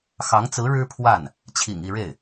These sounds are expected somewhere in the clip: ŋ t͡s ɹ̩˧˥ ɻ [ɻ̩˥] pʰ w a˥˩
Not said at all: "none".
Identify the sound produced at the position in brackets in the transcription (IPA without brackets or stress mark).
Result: ɻ̩˥